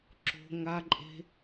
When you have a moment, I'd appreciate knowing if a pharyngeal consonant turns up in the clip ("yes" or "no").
no